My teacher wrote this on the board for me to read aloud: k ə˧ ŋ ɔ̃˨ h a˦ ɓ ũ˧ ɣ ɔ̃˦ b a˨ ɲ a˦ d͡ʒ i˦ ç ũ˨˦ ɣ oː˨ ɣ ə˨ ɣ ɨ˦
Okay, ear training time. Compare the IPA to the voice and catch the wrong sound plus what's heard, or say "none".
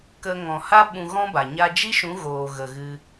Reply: ç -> ʃ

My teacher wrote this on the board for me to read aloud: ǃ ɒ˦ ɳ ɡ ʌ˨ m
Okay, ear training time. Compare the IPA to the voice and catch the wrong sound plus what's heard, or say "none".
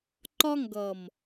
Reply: ɳ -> ŋ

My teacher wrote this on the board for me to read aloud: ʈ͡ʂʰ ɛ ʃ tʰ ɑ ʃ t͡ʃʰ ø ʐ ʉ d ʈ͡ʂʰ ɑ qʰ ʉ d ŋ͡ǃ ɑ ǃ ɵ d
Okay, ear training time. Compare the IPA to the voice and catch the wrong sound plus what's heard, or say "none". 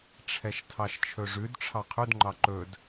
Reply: ø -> ɵ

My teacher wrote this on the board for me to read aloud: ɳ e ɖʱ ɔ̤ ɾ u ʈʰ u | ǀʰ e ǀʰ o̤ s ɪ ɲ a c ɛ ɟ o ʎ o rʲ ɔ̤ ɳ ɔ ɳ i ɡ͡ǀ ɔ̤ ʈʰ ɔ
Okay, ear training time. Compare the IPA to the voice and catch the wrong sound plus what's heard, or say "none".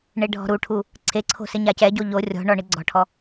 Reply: none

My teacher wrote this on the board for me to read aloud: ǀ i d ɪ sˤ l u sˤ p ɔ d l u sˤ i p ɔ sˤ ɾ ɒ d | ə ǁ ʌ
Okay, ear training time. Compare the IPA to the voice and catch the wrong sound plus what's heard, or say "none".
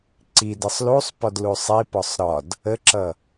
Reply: none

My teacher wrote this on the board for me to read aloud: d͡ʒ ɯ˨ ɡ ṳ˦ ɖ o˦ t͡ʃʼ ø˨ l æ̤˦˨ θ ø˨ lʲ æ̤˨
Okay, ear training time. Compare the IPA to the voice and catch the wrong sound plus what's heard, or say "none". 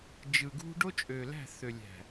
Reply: none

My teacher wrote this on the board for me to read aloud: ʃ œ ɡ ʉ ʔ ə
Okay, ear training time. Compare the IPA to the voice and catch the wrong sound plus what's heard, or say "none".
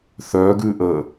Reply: ʃ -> θ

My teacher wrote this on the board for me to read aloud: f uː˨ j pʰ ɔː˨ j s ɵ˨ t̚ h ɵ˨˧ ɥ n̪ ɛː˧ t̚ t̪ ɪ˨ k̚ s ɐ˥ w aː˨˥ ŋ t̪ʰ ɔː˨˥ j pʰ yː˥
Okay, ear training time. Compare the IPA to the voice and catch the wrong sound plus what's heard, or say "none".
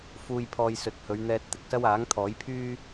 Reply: none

